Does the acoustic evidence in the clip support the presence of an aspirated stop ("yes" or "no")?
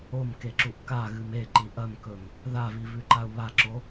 no